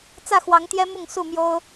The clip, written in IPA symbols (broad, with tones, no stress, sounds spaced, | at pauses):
t͡s ä˥˨ x w ɑ˨˦ ŋ t̪ j ɛ˦ m ʊ˥˨ ŋ s u˥˨ m j o˦ ʊ̯